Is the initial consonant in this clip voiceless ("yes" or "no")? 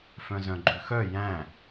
yes